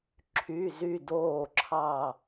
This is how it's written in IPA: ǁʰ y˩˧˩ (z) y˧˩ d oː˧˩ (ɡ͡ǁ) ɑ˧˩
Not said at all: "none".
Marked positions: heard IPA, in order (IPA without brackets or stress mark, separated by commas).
z, ǁʰ